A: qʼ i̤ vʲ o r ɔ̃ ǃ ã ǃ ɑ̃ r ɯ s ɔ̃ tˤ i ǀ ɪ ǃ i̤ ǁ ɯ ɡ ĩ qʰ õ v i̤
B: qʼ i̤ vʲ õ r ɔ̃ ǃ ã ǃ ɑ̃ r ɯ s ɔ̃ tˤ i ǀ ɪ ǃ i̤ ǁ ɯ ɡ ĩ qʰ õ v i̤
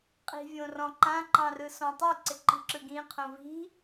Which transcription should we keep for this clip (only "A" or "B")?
B